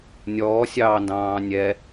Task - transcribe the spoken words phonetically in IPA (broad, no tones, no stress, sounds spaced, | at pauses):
nʲ ɔː sʲ ɑː n d ɑ̃ː nʲ ɛ